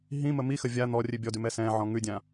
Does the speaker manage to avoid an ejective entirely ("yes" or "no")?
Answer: yes